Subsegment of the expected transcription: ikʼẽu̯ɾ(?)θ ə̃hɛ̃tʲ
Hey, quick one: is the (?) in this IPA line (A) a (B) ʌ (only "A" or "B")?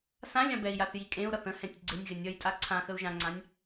B